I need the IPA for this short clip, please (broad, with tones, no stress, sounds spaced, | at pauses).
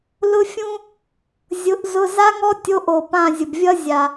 l ʊ˥ fʲ ũ˥ | zʲ ʊ˨˥ ʔ z ʊ˧˥˧ z a˥ ŋ ɔ˥ tʲ o˧˥˧ ʔ o˨ p ã˦˨ zʲ ʊ˨ b vʲ ʌ˥ zʲ a˨